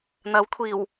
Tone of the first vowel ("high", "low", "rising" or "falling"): rising